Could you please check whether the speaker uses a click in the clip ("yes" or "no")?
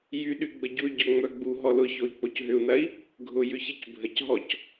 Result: no